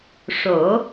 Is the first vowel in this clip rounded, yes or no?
yes